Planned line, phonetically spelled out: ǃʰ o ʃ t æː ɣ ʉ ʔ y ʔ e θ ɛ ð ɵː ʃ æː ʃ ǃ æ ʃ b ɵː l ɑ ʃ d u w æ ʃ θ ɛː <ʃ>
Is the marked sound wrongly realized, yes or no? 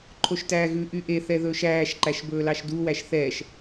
no